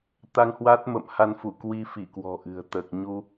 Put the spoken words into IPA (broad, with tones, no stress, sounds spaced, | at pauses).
t̪ a˧ ŋ h w a˦˥ t̚ m ə̰˧˨ m h a˧ n f u˧˩ k w i˧ f i˧˩ k w ɔ̤˨˩ ʔ ɨ̤˨˩ ə̯ t̪ əː˨˩ k̚ ɲ u˧